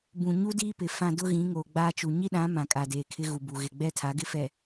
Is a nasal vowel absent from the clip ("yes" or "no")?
no